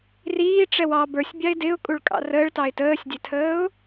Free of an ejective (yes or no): no